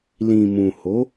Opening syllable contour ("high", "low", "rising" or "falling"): low